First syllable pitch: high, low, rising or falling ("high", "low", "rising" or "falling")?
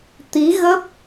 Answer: rising